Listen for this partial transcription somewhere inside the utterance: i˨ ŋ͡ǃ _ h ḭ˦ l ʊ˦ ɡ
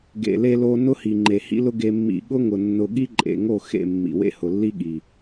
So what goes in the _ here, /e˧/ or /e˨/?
e˨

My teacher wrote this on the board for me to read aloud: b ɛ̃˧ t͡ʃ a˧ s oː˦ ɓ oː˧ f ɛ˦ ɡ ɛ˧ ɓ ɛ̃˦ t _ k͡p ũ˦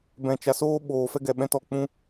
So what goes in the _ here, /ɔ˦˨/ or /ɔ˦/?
ɔ˦˨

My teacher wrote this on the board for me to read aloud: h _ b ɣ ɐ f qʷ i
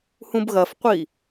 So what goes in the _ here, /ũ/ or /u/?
ũ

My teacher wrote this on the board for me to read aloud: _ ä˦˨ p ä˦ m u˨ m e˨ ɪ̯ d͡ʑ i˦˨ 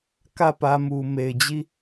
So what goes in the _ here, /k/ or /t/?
k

